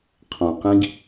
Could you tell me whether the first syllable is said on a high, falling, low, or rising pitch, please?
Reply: low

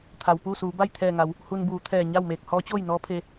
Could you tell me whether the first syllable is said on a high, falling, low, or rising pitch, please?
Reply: low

